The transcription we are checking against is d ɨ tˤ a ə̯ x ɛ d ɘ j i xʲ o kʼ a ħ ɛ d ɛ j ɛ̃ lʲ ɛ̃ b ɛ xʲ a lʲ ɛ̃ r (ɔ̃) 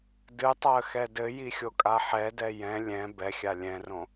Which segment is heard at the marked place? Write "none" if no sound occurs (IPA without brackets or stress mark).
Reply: õ